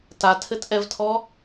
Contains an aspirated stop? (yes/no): yes